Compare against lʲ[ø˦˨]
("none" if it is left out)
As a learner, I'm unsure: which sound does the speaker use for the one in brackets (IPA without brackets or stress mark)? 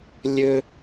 ø˦